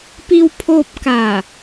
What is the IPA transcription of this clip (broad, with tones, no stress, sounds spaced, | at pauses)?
p i˧ w pʰ oː˧ p̚ k a˧˩